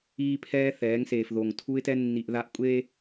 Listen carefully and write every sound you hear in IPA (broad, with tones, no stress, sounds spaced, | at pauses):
iː˦ pʰ ɛː˦ θ ɛː˨˦ ŋ s eː˨ f ð o˨ ŋ tʰ u˦ ɪ̯ t ɛ˦ nː i˨ ʔ ð a˦ ʔ kʷʼ eː˦